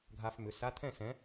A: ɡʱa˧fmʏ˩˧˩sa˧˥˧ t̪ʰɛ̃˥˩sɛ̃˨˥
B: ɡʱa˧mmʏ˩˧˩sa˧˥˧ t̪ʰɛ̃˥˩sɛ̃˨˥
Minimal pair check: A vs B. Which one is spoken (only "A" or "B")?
A